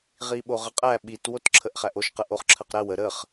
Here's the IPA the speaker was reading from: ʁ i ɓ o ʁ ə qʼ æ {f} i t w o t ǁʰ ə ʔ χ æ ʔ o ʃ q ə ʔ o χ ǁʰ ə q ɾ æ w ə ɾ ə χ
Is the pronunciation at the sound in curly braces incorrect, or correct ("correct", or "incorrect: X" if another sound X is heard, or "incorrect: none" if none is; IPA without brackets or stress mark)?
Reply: incorrect: ɓ